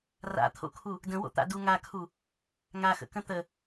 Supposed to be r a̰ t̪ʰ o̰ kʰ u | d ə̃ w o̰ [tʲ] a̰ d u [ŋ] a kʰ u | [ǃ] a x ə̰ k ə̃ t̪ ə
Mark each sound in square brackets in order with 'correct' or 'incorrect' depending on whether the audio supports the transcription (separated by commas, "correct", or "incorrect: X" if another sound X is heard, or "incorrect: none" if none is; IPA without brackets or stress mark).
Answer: incorrect: t̪, correct, incorrect: ŋ